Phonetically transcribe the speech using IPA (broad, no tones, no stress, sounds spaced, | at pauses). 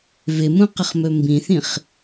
v ɪ m ũ q ə χ m ɵ m b ĩ θ ĩ χ